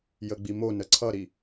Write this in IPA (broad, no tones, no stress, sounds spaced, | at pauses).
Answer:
j ə ɡ͡b i m o n ə ǀʰ ʌ ɾ i